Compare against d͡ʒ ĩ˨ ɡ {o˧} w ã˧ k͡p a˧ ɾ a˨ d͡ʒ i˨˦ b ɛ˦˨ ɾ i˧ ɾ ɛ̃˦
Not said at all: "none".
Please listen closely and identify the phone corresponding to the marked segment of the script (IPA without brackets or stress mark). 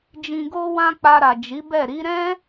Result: o˧